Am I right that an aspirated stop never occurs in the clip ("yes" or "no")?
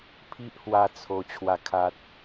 no